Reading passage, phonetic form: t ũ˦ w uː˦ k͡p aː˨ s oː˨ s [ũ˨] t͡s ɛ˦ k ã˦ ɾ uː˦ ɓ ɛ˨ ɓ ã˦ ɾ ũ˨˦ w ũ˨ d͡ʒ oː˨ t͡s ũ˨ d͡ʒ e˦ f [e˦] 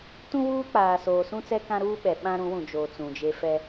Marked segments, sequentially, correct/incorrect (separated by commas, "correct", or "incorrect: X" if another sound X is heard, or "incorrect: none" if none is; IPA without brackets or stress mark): incorrect: ũ˦, incorrect: ɛ˦